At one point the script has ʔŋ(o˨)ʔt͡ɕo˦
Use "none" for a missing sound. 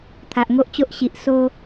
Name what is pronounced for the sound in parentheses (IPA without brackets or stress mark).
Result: o˦